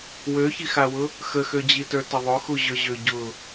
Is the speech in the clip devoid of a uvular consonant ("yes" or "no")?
yes